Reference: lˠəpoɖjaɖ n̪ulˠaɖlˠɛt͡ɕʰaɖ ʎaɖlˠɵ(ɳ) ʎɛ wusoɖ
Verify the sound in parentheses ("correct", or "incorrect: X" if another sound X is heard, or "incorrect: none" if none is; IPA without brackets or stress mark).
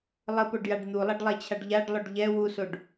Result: incorrect: ɖ